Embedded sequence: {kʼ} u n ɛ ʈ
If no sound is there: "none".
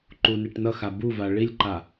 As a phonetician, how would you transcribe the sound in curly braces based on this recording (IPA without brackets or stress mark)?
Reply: ǃ